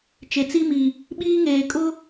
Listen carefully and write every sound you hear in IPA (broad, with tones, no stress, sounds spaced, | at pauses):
t͡ʃ e˨ t͡s i˦ m i˨ | ɓ iː˦ ŋ eː˨ kʼ ʊ˦